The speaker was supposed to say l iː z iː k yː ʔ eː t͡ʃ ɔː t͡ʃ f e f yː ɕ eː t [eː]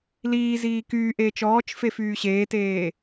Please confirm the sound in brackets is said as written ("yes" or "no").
yes